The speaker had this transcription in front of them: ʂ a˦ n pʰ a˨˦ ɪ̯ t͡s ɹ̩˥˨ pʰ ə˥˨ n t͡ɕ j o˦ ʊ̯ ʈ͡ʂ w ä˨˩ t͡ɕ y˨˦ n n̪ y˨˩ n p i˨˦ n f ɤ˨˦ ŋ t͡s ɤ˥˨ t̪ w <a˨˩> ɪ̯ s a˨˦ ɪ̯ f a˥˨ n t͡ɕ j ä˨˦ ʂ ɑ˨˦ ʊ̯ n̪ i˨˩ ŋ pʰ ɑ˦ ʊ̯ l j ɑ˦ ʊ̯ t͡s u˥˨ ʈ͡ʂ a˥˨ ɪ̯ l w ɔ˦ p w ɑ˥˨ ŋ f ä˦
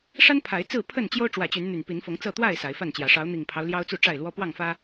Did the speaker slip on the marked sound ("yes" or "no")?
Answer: yes